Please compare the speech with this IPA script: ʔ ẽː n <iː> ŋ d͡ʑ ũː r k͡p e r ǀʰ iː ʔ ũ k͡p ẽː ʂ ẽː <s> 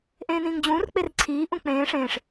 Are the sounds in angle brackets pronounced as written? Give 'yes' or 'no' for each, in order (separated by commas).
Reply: no, no